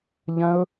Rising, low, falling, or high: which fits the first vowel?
high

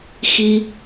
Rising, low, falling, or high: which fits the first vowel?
low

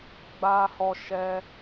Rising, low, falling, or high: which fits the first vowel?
high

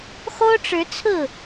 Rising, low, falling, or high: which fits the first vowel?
high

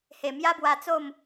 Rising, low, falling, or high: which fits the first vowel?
low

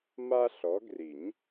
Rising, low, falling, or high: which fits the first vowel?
high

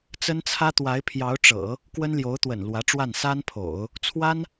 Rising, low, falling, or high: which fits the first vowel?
high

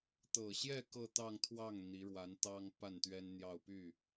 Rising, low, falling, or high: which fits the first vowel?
low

